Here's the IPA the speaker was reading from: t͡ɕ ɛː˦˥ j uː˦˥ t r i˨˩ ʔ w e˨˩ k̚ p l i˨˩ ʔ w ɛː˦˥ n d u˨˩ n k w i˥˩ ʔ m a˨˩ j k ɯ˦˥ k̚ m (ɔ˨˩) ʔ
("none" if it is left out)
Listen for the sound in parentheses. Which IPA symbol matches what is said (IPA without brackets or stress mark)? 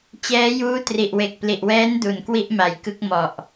ɔ˨˩